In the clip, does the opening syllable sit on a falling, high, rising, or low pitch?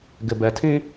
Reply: low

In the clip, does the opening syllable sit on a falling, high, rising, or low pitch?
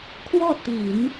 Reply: falling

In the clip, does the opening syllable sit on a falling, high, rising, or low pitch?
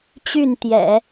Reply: falling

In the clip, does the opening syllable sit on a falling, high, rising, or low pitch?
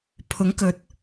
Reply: rising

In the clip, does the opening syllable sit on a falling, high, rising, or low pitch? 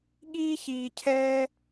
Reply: high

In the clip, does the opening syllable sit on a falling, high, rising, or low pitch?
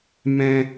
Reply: high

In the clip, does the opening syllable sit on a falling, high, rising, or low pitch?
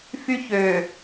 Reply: high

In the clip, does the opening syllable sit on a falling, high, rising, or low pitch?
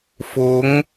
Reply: rising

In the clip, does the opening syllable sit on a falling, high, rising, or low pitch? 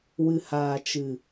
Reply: low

